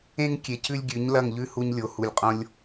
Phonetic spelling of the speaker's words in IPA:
ẽ˦ ŋ kʲ e˨˦ c ʉ˦ lʲ ɡʲ ʉ˨˦ ɲ l ɐ˦˨ ŋ ʎ ʉ˦ h u˧ ɲ lʲ o˨ h u˨ lʲ qʼ õ˧ lʲ

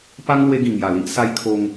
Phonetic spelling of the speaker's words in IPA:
p a˦ ŋ l w e˧ ɡ ĩ˨˩ ŋ j a˨˩ l i˦ ʔ s a˧ j kʰ o˧ ŋ

